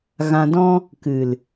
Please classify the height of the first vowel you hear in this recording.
low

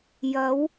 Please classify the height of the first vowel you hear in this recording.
low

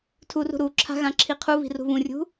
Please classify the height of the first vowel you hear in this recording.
high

